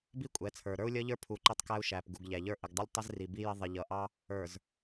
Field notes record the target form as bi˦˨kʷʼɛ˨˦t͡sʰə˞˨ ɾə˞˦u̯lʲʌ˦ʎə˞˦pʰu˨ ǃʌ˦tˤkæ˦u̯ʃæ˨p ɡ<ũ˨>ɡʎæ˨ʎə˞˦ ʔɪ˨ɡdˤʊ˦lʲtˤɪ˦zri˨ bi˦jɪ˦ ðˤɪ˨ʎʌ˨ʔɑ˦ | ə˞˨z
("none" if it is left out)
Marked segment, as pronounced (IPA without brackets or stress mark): u˨